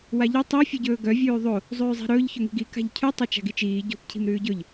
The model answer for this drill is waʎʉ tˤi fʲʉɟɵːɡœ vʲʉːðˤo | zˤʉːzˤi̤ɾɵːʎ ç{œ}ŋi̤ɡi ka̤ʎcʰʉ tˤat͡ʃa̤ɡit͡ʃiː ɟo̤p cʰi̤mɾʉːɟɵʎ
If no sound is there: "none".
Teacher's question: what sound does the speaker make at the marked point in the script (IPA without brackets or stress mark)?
ɵ